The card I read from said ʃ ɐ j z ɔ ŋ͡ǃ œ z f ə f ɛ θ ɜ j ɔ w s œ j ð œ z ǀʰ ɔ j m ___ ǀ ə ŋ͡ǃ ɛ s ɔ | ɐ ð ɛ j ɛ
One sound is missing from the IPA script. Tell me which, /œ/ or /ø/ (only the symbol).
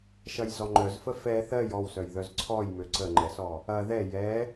ø